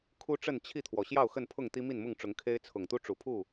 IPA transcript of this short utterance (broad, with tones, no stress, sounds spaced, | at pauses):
kʰ u˦ ʈ͡ʂ ə˥˨ n t͡ɕʰ i˥˨ t̪ʰ w ɔ˩ ɕ j ɑ˥˨ ʊ̯ x ə˥˨ n pʰ ʊ˥˨ ŋ t̪ i˦ m i˥˨ n m ʊ˥˨ ŋ ʈ͡ʂ ʊ˨˦ ŋ kʰ e˦ ɪ̯ t͡sʰ ʊ˨˩ ŋ t̪ u˦ ʈ͡ʂ u˨˩ pʰ u˥˨